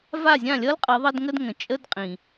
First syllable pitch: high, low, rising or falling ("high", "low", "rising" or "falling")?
falling